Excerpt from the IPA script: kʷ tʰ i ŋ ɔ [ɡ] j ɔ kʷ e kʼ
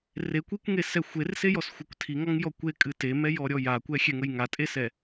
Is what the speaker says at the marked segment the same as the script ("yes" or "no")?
no